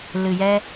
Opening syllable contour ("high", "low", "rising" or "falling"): low